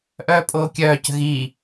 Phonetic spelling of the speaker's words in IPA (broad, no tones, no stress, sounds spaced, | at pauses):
ʔ œː pʼ oː kʲ œː c ə̤ ɣ iː